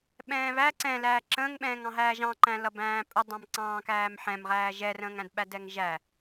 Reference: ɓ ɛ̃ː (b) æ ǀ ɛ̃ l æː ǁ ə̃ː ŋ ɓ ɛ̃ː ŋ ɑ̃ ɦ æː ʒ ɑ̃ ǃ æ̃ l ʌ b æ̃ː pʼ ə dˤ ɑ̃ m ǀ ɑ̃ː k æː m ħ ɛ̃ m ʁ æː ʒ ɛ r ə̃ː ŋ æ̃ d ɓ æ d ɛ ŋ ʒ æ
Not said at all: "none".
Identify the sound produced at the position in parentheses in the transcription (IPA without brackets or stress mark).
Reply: β